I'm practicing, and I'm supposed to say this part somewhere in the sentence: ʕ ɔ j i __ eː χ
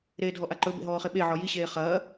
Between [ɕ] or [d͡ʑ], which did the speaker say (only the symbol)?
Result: ɕ